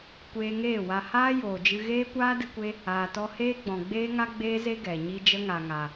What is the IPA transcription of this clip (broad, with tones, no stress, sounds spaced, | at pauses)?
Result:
kʷ eː˧ ŋ eː˦˨ w a˧ h aː˦ j oː˨ d͡ʒ ɨ˧ ɣ eː˦ kʷ aː˦ d ɨ˧ kʷ e˧ | aː˨ t ɔ˧ h eː˦ ɡ͡b ɔ̃˨ ɡ͡b eː˦ ŋ a˦ ɡ͡b eː˦ z e˦ ɡ ɛ˨ ɲ i˦ d͡ʒ ə˦ ŋ a˨ ŋ a˨